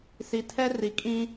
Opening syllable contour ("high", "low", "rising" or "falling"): low